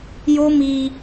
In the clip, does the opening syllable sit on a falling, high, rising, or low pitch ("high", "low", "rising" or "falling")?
high